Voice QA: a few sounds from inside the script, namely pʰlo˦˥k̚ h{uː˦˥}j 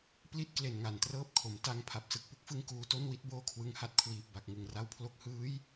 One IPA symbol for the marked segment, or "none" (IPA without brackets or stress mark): ɯː˦˥